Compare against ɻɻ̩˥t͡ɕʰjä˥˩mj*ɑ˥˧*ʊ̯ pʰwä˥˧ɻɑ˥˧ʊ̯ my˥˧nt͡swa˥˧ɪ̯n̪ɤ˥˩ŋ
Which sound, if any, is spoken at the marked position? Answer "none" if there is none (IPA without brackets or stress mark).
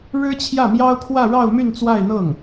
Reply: ɑ˥